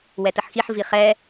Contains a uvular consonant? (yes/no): yes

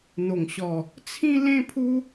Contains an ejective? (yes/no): no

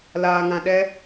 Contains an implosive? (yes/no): yes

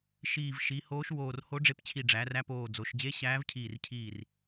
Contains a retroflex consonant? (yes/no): yes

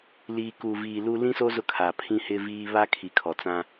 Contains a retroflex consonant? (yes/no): no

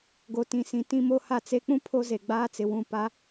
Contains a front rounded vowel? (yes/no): no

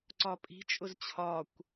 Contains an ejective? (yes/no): yes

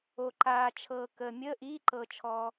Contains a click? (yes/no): yes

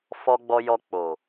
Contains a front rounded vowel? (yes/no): no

